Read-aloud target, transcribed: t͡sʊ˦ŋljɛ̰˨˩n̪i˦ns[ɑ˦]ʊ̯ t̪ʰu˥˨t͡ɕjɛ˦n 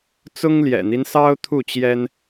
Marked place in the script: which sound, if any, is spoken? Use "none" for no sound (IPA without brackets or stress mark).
ɑ˦